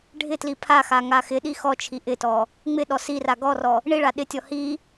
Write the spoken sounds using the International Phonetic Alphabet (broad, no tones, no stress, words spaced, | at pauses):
ɖʱɪtli pʰaxa ŋaxɪɗi xɔt͡ʃʰi ʔɪtɔ | ŋ͡mɪɗɔ sira ɡɔrɔ | ɳiɭa ɗɪtʲɔ hi